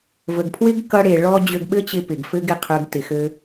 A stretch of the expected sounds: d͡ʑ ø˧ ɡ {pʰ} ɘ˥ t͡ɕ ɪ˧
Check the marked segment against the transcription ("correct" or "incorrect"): incorrect